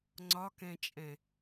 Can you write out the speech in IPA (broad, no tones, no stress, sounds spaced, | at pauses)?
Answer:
ŋ͡ǀ ɒ k ɛ̃ t͡ʃʼ ɛ̃